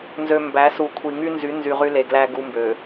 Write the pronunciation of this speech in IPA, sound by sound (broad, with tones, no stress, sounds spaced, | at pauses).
n z ø˨ m b æ˨˦ s u˨ kʷʰ i˨ ŋ y˦ n z y˨˦ n z y˨ ʁ y˦ l e˨ ɡ l æ˦ ɡ u˦ m b ø˨